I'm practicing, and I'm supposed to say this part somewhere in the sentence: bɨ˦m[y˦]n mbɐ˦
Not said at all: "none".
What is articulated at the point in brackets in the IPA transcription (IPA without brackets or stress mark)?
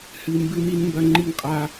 i˦